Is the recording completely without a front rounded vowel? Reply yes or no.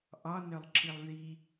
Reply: no